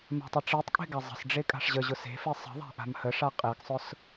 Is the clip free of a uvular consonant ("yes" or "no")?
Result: no